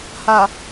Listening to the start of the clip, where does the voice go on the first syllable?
low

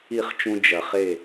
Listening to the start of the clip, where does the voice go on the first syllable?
falling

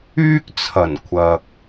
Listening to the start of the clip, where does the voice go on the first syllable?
high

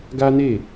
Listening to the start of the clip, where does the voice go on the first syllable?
high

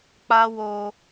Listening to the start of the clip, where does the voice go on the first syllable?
high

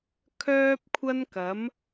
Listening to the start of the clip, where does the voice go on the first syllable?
high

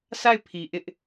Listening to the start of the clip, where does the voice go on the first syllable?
falling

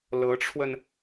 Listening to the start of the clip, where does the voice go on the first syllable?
rising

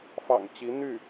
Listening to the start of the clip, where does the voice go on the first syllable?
low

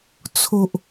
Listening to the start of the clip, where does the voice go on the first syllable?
low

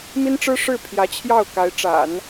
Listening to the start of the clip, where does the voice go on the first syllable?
high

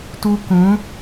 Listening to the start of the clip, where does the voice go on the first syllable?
high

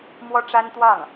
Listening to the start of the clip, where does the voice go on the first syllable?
high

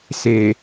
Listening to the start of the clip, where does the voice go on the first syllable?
low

